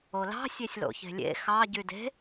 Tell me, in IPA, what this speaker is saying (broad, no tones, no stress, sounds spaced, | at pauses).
o l ɑ̤ sʲ e sʲ l o̰ ç e̤ lʲ ḛ x ɑ ɟ y d e̤